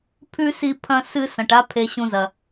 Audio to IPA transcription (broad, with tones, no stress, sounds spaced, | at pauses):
pʰ ʉ˥ s i˦ pʰ ɐ̃˦ s ɨ˦ s ɐ̃˩ ʈ a˦ pʰ e˨ ɕ ũ˨ z ɐ˩